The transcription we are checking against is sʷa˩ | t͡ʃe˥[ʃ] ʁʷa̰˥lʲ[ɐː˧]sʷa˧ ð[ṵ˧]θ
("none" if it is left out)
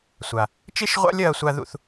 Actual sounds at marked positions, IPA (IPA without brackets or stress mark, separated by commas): ʃ, ɐː˧, ṵ˧